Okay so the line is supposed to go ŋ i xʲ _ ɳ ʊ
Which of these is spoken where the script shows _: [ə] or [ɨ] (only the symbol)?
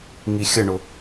ə